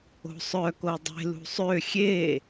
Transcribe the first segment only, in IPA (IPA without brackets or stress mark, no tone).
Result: o̤